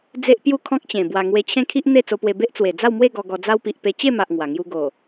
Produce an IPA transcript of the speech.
d͡z e˦ ʔ p j u˥˧ kʰ ɔ̃˦ k̚ t͡ɕ ẽ˨˩ b w a˨˩ ŋ w e˧ t͡ɕʰ ẽ˦ kʰ i˦ ʔ n̪ e˥˧ t͡s o˧ p w e˧ b e˦ ʔ t͡s w e˨˩ d͡z a˥˧ w m w e˥˧ ɡ ɔ˧ ɡ ɔ˧ d͡z a˦ w p i˨ ʔ p e˧ t͡ɕ e˥˧ m a˨ ʔ ŋ w a˨˩ ŋ j u˦ ɡ o˨˩

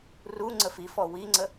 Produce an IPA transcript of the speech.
r u ŋ͡ǀ ə f i f ɔ w i ŋ͡ǀ ə

